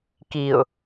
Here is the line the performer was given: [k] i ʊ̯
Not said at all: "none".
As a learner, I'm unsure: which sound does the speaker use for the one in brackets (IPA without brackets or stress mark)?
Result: k